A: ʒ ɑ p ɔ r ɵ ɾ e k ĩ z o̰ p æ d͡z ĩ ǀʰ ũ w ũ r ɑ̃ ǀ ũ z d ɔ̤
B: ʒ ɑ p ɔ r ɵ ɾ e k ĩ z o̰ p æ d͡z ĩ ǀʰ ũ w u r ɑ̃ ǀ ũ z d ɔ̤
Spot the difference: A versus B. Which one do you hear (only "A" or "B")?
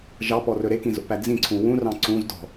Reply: A